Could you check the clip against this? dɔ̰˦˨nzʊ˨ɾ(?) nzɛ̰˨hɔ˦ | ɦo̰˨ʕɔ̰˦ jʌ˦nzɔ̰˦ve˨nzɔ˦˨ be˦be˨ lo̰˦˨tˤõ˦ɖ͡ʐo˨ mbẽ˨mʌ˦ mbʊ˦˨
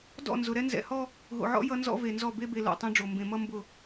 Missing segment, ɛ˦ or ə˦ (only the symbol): ɛ˦